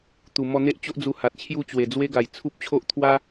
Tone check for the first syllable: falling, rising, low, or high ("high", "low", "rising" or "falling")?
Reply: low